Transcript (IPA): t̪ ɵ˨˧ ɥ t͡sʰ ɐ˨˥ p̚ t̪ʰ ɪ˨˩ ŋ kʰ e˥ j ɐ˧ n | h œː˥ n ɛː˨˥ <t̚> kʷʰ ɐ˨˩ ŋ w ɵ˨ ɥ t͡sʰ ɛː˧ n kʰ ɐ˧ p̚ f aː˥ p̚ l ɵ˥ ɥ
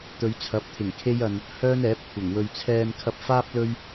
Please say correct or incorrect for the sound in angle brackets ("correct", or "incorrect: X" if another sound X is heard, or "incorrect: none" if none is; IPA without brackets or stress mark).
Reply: incorrect: p̚